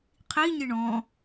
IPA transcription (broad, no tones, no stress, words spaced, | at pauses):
qʰiɲɪ ɳɔ̃